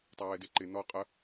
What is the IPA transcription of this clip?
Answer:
tˤ a w ɛ d e ǃ ɪ n ɔ qʼ ə

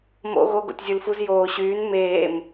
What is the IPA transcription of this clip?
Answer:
m o̰ ɣ o ɡ o̰ tʲ zʲ u l f u z j oː ɕ yː n m eː m

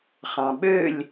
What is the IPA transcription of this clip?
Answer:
χ ɑ̃ ɓ ø lʲ

